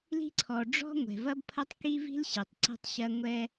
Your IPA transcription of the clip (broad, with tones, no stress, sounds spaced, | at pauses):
l i̤˥ ǀʰ ɔ˩ ɖ͡ʐ ɔ̤˥ ŋʷ ɛ̤˩ v ɐ˥ b pʰ ɐ˥ tˤ k i˥ v i̤˥ l ɕ ɛ˩ tˤ ǀ ɛ̤˥ tˤ ɕ ɐ˥ ŋʷ ɛ˥